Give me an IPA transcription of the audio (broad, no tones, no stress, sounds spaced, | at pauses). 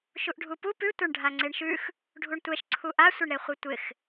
ʃ u ʔ ɖʱ u p u p ʉ tʷ a ɳ ɖʱ a ŋ͡ǀ e ɳ ʃ ʉ x | ɖʱ u ɳ tʷ ɛ ʃ ǀʰ u ʔ a sʷ ɪ ɳ ɾ e χʷ ɨ tʷ ɪ x